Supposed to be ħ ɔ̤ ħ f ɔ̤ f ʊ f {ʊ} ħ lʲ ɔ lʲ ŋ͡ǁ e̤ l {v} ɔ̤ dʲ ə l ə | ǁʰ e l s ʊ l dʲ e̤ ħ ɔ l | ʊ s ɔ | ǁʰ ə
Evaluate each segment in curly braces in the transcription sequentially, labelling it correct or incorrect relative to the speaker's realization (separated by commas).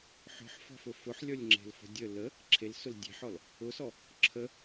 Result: correct, incorrect